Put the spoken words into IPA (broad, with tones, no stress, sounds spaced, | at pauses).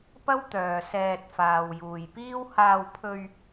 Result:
p ɐ˥ w t̪ œː˨ s ɛː˧ t̚ f aː˨ w j uː˨ j p iː˥ w h aː˧ w pʰ ɵ˧ ɥ